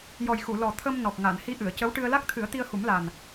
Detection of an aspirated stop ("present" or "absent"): present